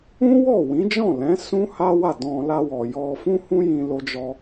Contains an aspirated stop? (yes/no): no